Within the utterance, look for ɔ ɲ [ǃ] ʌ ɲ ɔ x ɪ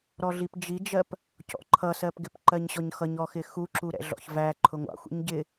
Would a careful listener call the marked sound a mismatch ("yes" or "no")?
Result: yes